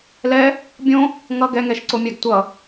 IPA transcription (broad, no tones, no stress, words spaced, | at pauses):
lɛ | bʲõ | ŋʌ ɡɛŋɛʃǀomʲaɡ tʷʌ